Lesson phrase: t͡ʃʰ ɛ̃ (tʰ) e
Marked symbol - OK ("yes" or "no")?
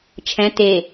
no